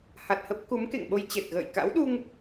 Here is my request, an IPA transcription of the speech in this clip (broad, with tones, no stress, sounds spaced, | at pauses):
h a˨˩ t̚ h ə˦˥ p̚ k u˨˦ m k ḛ˧˨ ŋ ɓ o˧ j t͡ɕ e˨˩ t̚ ɣ ə̰ː˧˨ j k a̰˧˥ w ɗ u˧ ŋ